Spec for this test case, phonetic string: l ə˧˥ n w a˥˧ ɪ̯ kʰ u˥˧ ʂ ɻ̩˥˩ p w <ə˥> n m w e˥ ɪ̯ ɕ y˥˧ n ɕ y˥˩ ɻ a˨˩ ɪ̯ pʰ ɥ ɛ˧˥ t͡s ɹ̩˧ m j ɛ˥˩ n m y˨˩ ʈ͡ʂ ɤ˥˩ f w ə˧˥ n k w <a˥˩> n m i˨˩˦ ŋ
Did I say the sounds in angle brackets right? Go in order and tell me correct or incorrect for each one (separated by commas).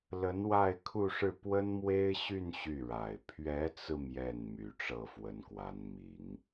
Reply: correct, incorrect